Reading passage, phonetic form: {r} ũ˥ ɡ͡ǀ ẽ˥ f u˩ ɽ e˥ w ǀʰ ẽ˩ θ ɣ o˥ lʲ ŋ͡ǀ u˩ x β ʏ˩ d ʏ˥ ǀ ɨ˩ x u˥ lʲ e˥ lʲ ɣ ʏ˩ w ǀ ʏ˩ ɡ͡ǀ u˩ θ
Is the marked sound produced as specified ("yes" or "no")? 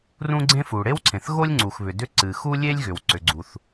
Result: yes